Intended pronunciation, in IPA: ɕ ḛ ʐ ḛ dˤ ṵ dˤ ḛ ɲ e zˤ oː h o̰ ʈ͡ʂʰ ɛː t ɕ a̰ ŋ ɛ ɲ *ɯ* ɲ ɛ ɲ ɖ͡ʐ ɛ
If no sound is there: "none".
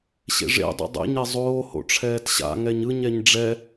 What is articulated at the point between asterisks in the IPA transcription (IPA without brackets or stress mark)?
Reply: ɯ